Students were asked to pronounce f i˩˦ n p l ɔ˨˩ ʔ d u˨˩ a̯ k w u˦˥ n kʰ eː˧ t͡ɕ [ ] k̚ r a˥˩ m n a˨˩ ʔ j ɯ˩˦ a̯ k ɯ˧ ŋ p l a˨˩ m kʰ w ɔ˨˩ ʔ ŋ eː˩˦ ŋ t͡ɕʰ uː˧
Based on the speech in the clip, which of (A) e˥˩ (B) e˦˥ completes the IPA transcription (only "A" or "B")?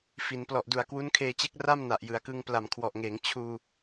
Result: B